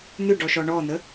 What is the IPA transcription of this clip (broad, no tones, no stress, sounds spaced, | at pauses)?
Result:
n ʏ ɖ ɔ ʃ ɔ ɳ ɔ n̪ ə